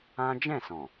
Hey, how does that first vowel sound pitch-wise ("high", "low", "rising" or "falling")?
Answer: high